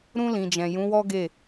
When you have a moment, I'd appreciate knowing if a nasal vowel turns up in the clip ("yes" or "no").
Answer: yes